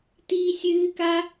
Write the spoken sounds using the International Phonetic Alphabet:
tiːsʲɨːka

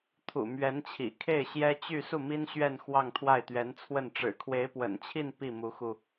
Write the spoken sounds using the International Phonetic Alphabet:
t̪ʰṵ˨˩ mɥɛ˧˥nt͡ɕʰḭ˨˩ kʰe˥˩ɪ̯ɕjɛ˥t͡ɕy˥˧ su˥˩mi˥nɕɥɛ˥˧n xwɑ˥˧ŋt̪ʰwa˥˩ɪ̯t̪ɥɛ˧˥nt͡sʰwə˥˩n ʈ͡ʂɻ̩˨˩kʰwe˧˥ɪ̯pwə̰˨˩nt͡ɕʰi˥˧n pi˥˩mu˧˥xu˧

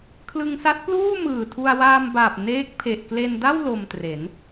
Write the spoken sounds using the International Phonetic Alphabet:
kʰlɯ˧ŋsa˦˥t̚pluː˥˩ mɯː˨˩tʰu˧a̯waː˧mbaː˨˩p̚ neː˦˥k̚pʰe˨˩ʔ kle˧nda˥˩w lo˧mtre˩˦n

